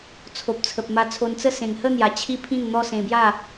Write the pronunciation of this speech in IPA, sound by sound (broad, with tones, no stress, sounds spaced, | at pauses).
t͡sʰ o˨ p̚ t͡sʰ ə˨ p̚ m a˧ t͡sʰ o˧ n t͡s ə˥˧ s ẽ˨˩ ŋ h ə˥˧ n̪ j a˨˩ t͡ɕʰ i˦ pʰ ĩ˥˧ n n̪ ɔ˦ s ẽ˧ b j a˥˧